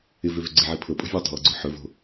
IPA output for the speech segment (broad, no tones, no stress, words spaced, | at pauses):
ɪ vøvøɡ͡ǀɪʕi pʰɤpʼo̤ vʲøtˤo̤ wə̤ɡ͡ǀɵħɵvo̤